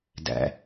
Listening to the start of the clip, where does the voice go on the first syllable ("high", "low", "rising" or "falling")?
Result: low